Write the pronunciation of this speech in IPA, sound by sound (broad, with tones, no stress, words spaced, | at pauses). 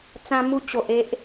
t͡sã˧mu˧t͡ɕo˨ʔ e˦ʔ